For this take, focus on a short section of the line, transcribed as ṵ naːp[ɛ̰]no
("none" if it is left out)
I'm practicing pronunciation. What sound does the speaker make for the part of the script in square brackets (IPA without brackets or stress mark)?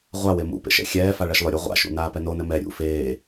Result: ɛ